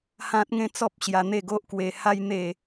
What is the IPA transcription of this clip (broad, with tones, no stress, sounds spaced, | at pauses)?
h ã˦ t̚ ŋ ẽ˦ t͡s ɔ˦ p̚ ɕ j a˧ n̪ e˥˧ ɡ o˦ ʔ k w e˧ h a˦ j n̪ e˥˧